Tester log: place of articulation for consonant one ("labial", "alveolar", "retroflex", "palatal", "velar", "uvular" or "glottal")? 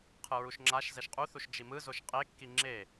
uvular